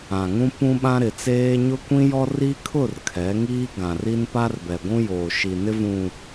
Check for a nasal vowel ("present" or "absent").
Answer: present